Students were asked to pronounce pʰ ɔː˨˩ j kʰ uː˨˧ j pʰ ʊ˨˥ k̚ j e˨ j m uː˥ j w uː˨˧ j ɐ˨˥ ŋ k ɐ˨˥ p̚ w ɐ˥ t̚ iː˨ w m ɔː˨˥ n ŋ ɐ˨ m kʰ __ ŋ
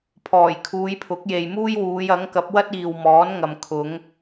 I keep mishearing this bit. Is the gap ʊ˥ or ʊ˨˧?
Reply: ʊ˨˧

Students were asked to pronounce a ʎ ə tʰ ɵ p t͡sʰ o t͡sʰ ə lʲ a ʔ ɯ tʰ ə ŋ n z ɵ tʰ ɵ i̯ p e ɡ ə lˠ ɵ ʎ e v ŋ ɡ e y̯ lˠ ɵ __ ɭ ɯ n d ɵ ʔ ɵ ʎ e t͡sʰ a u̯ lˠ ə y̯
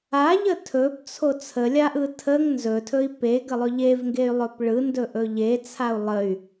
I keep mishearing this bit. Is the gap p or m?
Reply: p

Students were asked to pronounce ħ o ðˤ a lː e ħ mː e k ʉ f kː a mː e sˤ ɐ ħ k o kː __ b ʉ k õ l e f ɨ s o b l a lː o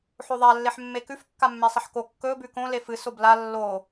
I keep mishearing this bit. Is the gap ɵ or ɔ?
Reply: ɵ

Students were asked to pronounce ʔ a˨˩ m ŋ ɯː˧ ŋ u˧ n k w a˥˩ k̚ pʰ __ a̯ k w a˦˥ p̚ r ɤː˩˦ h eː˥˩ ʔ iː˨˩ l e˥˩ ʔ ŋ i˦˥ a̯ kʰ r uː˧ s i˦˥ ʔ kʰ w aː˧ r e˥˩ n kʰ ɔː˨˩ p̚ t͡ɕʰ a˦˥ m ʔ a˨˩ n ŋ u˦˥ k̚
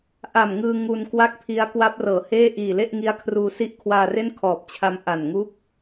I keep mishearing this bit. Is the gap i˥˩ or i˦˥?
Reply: i˦˥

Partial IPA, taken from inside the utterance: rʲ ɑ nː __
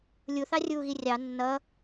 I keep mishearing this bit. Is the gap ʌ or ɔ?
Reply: ʌ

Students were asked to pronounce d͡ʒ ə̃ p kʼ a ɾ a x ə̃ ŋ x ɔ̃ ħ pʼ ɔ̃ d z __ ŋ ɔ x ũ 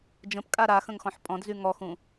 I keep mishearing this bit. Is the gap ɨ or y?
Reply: y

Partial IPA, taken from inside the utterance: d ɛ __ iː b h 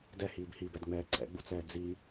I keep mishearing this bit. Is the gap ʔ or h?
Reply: h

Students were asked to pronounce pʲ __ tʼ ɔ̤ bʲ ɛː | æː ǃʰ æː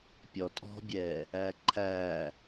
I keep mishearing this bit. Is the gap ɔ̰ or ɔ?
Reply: ɔ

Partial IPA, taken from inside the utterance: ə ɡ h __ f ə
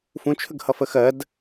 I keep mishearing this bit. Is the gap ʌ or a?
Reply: ʌ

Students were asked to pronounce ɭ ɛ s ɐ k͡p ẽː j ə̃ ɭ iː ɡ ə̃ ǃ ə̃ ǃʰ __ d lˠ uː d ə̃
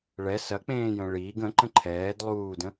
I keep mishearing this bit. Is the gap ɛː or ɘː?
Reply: ɛː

